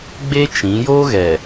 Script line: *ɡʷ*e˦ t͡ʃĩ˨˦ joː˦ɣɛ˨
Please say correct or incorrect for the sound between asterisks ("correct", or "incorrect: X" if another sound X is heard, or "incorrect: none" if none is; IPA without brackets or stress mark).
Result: incorrect: ɡ͡b